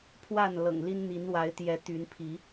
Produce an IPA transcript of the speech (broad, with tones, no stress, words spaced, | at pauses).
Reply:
pʰwa˥˨n lɤ̰˨˩ŋli˦nn̪i˨˦nwa˨˦ɪ̯ t̪jɛ˨˦t̪y˨˦npʰi˨˦